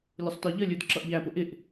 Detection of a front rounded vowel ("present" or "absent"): absent